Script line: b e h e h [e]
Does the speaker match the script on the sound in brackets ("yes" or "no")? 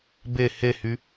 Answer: no